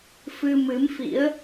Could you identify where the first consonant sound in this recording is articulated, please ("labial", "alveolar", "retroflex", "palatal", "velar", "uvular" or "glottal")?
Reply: labial